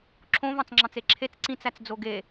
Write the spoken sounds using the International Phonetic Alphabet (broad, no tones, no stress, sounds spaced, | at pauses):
ǁʰ õ v ɑ̃ t͡s ŋ͡ǁ ɑ̃ t͡s e ǁʰ e t͡s ǀ ĩ t͡s æ t͡s d͡z o ɡ e